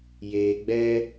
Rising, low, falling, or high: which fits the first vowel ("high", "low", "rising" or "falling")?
low